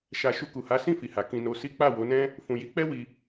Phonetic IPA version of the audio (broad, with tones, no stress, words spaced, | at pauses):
ʃa˨ ʃu˧ku˨ha˨˦ sĩ˦˨fi˨ha˨ kĩ˧no˧si˦ k͡pa˦˨wo˨˦nɛ̃˦ | fũ˨ji˨˦ k͡pɛ˦wi˧